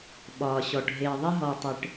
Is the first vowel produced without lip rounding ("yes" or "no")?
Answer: no